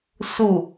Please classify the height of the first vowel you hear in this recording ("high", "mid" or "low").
high